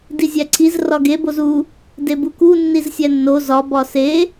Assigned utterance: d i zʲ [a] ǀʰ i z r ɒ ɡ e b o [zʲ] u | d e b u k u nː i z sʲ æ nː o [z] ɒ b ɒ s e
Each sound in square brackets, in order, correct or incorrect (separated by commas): incorrect, incorrect, correct